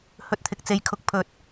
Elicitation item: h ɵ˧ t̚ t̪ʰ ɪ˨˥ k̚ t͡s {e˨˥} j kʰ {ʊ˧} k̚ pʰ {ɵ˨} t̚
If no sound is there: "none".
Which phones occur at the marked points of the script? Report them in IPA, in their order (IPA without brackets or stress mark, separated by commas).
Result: e˨˥, ʊ˧, ɵ˨